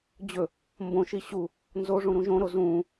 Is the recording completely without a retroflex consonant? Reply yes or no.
no